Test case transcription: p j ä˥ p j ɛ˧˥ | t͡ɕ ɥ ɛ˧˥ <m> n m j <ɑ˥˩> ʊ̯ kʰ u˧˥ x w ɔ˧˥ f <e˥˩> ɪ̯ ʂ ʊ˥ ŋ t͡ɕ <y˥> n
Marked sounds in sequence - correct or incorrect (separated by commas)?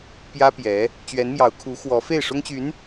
incorrect, incorrect, correct, incorrect